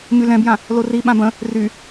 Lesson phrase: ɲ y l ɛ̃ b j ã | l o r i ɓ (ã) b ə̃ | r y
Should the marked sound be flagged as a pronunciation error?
no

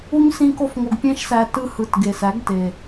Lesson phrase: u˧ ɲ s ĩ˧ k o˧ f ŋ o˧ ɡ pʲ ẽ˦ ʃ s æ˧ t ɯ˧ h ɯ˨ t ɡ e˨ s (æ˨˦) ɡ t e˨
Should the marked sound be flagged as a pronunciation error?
no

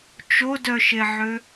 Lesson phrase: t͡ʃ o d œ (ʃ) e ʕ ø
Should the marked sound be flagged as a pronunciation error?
no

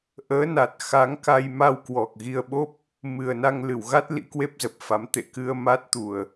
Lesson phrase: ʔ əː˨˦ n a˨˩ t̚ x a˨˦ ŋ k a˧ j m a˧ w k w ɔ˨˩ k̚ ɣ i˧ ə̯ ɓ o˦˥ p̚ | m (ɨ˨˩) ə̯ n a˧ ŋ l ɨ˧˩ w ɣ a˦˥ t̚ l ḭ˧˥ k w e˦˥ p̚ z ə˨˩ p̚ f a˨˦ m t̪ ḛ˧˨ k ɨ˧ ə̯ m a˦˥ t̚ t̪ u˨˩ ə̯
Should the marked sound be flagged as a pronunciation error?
no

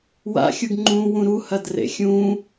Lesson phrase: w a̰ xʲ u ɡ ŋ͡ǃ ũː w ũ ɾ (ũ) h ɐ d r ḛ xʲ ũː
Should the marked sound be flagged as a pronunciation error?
yes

